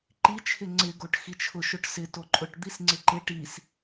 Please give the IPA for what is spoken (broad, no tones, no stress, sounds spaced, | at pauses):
ǃ i t͡ʃʰ ɪ ŋ͡ǀ ɪ ɡ o ʈ x i t͡ʃʰ ʊ ʃ ʊ ʈ s ɪ t o ǃʼ ʊ ʈ d̪ i s ŋ͡ǀ ɪ ǃ ɪ ʈ i s